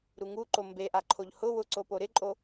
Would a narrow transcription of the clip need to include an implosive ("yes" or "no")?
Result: no